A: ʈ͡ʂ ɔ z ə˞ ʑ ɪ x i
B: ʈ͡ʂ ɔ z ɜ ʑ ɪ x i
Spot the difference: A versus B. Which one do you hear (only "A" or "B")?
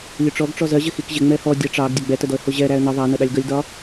B